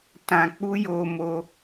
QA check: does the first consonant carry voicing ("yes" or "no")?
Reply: no